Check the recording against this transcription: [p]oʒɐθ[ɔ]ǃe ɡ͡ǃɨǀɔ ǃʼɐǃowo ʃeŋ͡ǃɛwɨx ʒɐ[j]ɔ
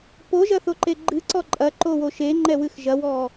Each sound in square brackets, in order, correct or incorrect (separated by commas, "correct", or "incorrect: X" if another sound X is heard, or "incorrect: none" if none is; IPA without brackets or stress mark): correct, incorrect: o, incorrect: w